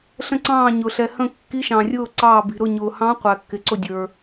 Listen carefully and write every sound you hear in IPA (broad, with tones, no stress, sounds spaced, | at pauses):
ɬ ə̃˧˩ ǀ ɑ̃ː˧˩ ɲ ʊ˩ ɬ ɛ˩ h ə̃˧˩ kː i˨˦ ʃ ɑ̃˩ rʲ ʊː˧˩ ǀ ɑː˧˩ b i̤˩ ɾ ʊ˧˩ ɲ ʊː˩ h ɑ̃˨˦ qʷ æ˩ kː ɪ˩ ǀ ʊ˧˩ dʲ ə˞˩